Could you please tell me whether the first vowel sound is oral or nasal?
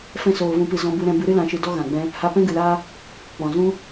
nasal